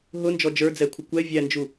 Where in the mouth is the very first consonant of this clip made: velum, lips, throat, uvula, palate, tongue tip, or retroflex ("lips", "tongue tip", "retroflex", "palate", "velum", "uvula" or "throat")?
throat